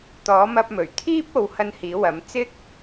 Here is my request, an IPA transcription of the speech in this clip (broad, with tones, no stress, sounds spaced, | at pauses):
t̪ ɔː˨˥ m ɐ˧ p̚ m ɵ˨˩ ɥ t̪ʰ iː˥ p̚ o˨˧ w h ɐ˧ n h iː˨˥ w ɐ˨˥ m t͡s ɪ˥ k̚